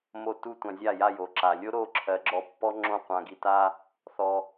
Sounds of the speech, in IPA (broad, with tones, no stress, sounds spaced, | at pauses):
m o˧ t u˦ tʷ ã˧ zʲ a˦˨ j a˦˨ j o˨ ǁ a˨ lʲ o˦ ɾ o˦˨ ǁʰ ɜ˨˦ ɡ͡ǁ ɔ˧ pː ɔ˦ ŋ͡ǁ õ˦˨ qʷ ã˧ ɡ i˧ t a˦ | θ ɔ˧